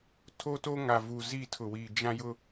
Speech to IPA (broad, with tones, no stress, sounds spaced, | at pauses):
tʰ o˦ t o˦ ŋ a˨ v u˨ z i˦˨ tʰ ʊ˨ w i˨ d͡ʒ ã˦ j ʊ˦